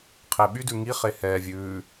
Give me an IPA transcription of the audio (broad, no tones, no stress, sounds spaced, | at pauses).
qʰ e ɓ y d ʉ ŋ i χ e h ɛː vʲ ʉː